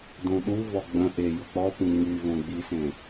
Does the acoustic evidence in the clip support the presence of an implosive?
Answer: yes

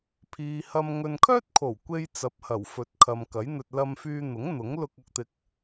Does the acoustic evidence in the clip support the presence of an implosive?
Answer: no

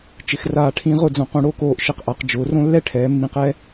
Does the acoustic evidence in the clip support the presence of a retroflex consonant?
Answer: yes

